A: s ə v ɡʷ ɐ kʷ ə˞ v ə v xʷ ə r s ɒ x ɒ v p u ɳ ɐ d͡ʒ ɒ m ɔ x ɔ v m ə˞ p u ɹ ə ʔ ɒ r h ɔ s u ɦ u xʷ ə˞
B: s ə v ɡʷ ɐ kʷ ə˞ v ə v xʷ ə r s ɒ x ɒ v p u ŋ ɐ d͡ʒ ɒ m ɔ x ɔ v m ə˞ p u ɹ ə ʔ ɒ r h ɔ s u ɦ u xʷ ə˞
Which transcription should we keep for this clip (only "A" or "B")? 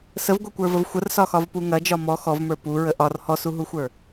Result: B